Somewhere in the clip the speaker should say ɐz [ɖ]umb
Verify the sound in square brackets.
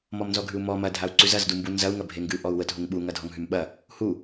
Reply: incorrect: d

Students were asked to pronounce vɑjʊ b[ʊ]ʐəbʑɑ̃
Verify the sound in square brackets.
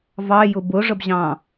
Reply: correct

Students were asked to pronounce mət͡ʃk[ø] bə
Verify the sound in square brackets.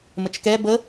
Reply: incorrect: ɛ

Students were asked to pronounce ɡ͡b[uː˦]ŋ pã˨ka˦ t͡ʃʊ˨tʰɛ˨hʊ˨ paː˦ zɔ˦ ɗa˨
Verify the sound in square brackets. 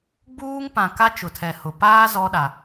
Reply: correct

